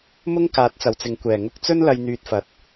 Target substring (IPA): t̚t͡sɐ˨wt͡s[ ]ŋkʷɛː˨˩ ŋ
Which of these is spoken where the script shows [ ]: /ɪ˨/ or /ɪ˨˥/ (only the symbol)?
ɪ˨